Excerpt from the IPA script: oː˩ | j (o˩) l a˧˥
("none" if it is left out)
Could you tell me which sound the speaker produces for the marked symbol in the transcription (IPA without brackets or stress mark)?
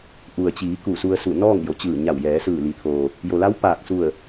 o˩